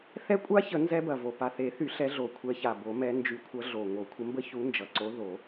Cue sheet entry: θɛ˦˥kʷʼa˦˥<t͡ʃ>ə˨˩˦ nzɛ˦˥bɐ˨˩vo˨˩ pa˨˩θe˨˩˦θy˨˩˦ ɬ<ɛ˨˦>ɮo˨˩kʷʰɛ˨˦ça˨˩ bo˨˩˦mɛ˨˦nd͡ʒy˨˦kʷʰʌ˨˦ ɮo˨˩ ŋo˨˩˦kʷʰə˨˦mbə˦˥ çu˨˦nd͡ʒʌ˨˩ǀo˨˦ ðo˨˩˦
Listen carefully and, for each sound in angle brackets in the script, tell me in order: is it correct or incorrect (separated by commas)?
incorrect, correct